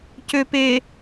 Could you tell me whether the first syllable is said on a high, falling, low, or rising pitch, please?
low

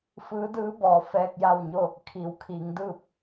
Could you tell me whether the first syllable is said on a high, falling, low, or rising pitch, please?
rising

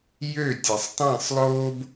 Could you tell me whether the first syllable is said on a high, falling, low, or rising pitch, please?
falling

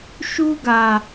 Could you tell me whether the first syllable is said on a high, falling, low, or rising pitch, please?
high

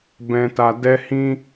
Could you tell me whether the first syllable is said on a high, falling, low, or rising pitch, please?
low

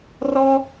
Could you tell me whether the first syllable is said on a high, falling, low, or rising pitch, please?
high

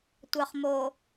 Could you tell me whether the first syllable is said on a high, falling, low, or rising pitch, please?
low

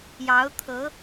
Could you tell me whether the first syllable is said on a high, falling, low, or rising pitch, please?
rising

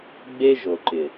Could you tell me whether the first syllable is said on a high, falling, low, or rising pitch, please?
high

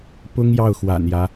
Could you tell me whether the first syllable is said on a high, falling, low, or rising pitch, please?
high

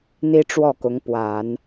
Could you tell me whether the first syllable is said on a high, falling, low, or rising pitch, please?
high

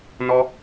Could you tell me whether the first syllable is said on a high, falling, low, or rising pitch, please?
high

